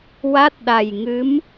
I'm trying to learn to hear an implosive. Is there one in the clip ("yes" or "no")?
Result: yes